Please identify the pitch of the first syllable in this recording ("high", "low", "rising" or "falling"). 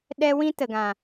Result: high